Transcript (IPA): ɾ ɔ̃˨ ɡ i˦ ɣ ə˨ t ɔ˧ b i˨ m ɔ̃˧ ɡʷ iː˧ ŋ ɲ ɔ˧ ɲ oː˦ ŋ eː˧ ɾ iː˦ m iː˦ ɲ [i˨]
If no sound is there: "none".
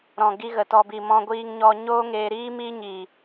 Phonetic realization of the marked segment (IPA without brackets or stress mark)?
iː˨